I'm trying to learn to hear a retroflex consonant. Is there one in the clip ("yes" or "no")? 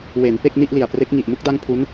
no